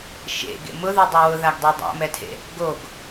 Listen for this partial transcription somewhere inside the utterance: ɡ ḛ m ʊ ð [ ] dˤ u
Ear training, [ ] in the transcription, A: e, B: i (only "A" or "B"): B